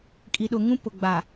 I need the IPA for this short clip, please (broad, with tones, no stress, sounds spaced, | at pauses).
kʼ i˨ ɗ ʊ˨ ŋ ũ˦ p ʊ˨ ɡ͡b a˨